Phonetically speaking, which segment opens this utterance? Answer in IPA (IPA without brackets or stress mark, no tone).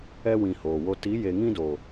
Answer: ɛ